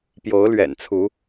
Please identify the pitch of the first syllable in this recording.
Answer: rising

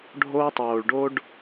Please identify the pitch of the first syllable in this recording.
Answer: high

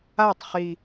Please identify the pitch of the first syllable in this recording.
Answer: falling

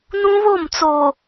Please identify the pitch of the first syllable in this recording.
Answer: high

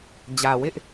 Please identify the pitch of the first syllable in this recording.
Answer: low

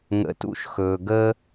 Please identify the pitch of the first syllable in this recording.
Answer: rising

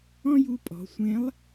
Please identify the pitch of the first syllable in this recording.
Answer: high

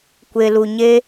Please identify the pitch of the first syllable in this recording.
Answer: low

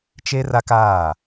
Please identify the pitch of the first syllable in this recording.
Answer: high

